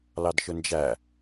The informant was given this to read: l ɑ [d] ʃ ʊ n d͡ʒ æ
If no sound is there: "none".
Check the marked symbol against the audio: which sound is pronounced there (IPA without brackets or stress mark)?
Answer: d